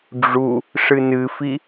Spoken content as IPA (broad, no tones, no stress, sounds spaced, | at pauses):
ɖ͡ʐ u | ʂ ɨ n ɨ f i